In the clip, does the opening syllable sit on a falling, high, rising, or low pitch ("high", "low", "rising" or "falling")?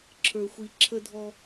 low